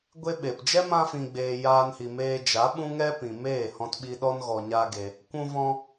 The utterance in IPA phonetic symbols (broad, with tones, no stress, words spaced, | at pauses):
ɡʷe˦ɓe˨p d͡ʒɛ˦mã˧fĩ˨ɡ͡beː˨ jaː˧nhi˨meː˧ d͡ʒa˨˦ɓũ˦ ŋɛ˦pĩ˨ meː˦˨hɔ̃˧tɓi˧ɗɔ˦n ɣɔ˧ɲa˦ɡe˧ | kʷũ˧vɔ̃˧